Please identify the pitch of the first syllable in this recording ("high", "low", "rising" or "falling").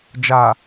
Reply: low